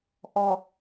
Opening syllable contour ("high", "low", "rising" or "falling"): low